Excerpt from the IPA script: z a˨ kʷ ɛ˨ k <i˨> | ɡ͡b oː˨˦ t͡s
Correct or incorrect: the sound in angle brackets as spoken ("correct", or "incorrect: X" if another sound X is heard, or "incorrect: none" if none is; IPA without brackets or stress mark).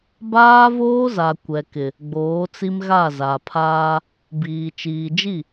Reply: incorrect: ɪ˨